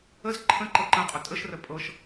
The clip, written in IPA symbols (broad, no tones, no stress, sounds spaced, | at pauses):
ə z ǃʰ ə̃ ǃ ɤ ǃ ə̃ qʼ ɵ tʼ ə ʃ r ə pʼ ɤ ʃ